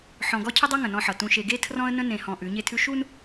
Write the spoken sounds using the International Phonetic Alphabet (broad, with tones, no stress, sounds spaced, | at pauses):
ħ ɔ̃˨ ɡ ɔ˦ cʰ ə˦ dˤ ʌ˦ ŋ ə̃˨ n ɔ̃˦ ħ ʌ˨ t ũ˨ ʃ e˨ ɡ e˦ tʰ r ɔ̃˦ ə̯ n ə̃˦ n ẽ˨ h ɔ̃˨ ʔ ʉ˨˦ ɲ e˦ tʰ ʉ˦ ʃ u˦ n